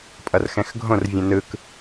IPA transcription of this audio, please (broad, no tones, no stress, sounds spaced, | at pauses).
pʼ ʌ r x ɛ̃ x ɡʱ õ r vʲ ũ n ɯ k